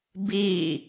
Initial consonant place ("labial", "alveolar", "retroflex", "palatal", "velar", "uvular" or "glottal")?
labial